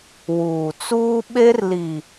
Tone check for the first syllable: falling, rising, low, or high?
low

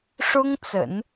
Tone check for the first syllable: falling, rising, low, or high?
high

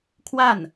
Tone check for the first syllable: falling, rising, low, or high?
falling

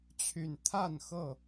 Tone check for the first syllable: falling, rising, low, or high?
low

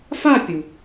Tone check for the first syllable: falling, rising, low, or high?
falling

